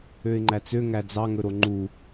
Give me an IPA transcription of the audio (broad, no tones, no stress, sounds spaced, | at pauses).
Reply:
ø ɪ̯ ŋ͡ǃ æ t͡s ø ŋ æ d͡z ɑ ŋ ɵ ɾ o ŋ͡ǃ u